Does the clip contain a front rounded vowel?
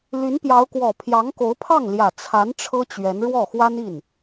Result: yes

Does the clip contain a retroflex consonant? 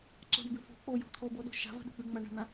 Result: yes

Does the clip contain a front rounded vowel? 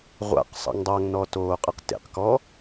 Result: no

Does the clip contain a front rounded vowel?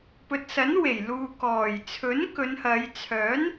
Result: yes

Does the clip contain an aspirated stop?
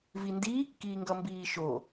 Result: no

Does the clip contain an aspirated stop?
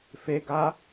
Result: no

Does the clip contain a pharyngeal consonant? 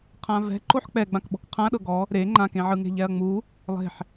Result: yes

